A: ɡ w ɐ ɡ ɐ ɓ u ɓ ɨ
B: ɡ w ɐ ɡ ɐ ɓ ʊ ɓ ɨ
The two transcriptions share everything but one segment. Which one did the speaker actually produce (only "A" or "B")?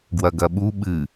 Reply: A